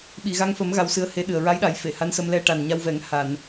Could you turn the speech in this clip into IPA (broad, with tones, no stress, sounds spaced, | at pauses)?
ɓ i˨˩˨ ɣ a˧ ŋ f ə˨˩˦ m ɣ a˧ w s ɨ˧˥ ə̯ h e˧˥ ɗ ɨ˨˩ ə̯ ɹ a˧˥ j ɗ a˨˩˦ j f e˨˩˨ h a˧˥ n s ə˧ m l ɛ˧ ʈ a˨˩ n ɲ a˧ w v ɛ˨˩˦ ŋ h a˨˩˨ n